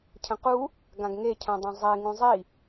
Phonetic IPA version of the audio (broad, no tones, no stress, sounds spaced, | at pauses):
cʰ ə̃ q u | ɡ ã ɡ ŋ e cʰ œ̃ dˤ ɛ̃ zˤ e ŋ ũ zˤ i